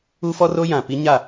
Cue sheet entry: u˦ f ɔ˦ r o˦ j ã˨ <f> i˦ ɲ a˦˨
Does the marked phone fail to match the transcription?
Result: yes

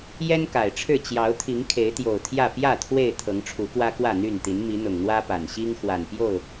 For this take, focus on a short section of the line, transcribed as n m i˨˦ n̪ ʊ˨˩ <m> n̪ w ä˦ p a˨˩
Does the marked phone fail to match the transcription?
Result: yes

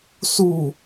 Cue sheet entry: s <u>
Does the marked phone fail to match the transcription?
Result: no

